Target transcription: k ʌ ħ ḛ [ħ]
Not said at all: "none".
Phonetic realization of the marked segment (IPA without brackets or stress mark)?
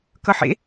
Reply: none